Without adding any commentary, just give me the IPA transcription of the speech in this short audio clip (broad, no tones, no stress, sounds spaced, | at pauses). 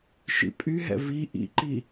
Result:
ʃ ḭ pʼ y ɦ ɛ̰ v i ʔ ḭ ǃ i